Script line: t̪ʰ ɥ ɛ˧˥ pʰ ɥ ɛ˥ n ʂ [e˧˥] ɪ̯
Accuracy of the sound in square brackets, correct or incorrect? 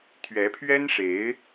correct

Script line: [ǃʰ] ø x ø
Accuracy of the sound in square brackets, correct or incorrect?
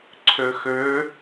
incorrect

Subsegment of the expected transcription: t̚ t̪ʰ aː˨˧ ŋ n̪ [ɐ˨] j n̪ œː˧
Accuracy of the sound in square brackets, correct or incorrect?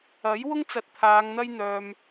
incorrect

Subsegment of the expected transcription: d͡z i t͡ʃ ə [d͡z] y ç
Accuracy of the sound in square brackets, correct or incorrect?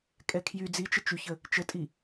incorrect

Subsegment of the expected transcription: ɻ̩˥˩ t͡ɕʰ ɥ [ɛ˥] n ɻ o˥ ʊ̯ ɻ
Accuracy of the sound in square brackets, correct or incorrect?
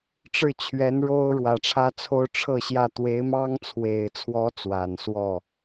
incorrect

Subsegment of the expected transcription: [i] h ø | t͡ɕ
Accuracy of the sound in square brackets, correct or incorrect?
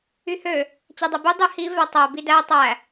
incorrect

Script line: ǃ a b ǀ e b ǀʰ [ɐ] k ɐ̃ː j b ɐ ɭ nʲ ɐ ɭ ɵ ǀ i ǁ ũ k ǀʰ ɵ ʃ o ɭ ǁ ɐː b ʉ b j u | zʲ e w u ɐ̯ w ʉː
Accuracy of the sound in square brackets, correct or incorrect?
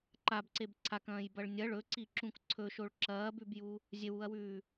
incorrect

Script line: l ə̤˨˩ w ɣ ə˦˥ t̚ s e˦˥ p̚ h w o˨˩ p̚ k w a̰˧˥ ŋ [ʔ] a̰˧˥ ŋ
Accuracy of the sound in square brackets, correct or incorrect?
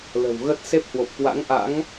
correct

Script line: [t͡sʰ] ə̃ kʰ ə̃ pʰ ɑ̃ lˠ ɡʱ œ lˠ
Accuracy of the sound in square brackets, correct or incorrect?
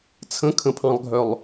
correct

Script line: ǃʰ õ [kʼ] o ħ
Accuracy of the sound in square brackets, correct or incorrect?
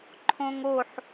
incorrect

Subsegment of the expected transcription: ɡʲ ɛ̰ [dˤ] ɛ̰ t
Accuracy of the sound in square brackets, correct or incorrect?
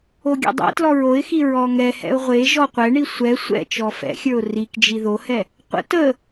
correct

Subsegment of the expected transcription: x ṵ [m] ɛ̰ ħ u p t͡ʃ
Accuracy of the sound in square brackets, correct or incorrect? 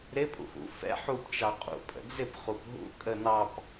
incorrect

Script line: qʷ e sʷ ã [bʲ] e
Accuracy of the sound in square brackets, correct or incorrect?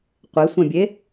correct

